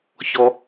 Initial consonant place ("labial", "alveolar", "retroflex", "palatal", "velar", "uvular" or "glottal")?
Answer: palatal